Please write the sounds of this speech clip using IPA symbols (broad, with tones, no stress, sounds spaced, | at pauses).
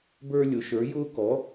b ə˞˦ lʲ ʊ˩˥ ʃ ə˞˩˥ j ʊː˦ k ɔ˩˥